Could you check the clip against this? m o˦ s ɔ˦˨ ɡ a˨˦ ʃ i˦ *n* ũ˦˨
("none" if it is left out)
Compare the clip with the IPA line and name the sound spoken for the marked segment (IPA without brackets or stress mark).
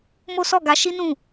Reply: n